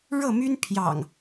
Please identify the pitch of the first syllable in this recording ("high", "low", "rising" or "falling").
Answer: falling